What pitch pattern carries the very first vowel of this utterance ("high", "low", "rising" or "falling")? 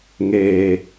low